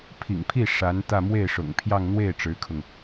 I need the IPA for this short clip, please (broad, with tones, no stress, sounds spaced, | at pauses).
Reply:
pʰ ḭ˨˩ ŋ pʰ i˥˩ ʂ a˧˥ n t̪ ä˥˧ m w e˥˩ ɪ̯ ʂ ʊ̰˨˩ ŋ pʰ j ɑ˥˧ ŋ n̪ w e˥˩ ɪ̯ ʈ͡ʂ ɻ̩˧˥ kʰ ʊ˧ ŋ